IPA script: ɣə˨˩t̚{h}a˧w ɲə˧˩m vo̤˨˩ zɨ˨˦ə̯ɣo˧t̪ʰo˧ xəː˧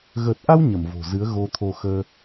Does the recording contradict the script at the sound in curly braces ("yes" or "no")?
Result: yes